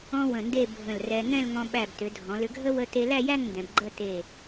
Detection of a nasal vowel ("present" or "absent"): present